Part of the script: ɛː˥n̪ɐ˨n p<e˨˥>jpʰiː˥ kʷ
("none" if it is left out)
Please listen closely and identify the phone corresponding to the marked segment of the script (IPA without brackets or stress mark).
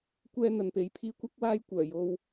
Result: e˨˧